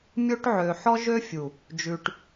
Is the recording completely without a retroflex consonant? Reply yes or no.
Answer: no